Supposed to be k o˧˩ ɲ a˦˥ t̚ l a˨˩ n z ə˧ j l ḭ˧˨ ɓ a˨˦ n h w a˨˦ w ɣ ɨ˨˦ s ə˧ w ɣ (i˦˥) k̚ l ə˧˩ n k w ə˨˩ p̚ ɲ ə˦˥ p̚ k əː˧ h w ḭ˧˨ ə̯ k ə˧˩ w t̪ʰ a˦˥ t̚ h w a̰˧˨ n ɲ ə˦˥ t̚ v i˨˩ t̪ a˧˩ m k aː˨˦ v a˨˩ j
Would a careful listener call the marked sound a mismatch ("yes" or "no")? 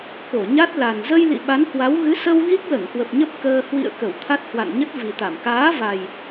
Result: no